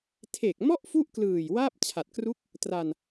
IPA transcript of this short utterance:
tʰ e˨˩ k̚ m ɔ˥˩ ʔ f u˥˩ ʔ k l ɯː˨˩ j w aː˥˩ p̚ t͡ɕʰ a˨˩ t̚ k r u˦˥ k̚ | t r a˧ n

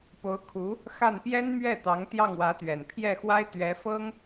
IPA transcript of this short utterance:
p o˧˥ ʊ̯ kʰ u˧˥ | x a˥˩ n p j ɛ˥ n m ɥ ɛ˥˩ t̪ ɑ˧˥ ŋ t̪ j ɑ˥˩ ŋ w ä˧˥ t̪ ɥ ɛ˨˩ n pʰ j ɛ˥˩ x w a˥ ɪ̯ t̪ ɥ ɛ˧˥ f ɤ˥ ŋ

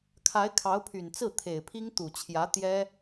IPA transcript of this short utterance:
kʰ a˧˥ ɪ̯ kʰ ɑ˧˥ ʊ̯ pʰ y˨˩ n t͡s ɹ̩˥˩ t̪ʰ e˨˩ ɪ̯ pʰ i˥ ŋ t̪ u˨˩ t͡ɕʰ j ä˧˥ t̪ j ɛ˥

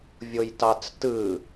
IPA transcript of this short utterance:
vʲ o j t ɑ t͡s t ɯ

